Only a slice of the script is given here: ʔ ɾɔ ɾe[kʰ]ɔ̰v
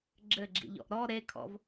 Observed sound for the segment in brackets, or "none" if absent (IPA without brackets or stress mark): kʰ